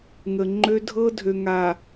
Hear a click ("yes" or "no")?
yes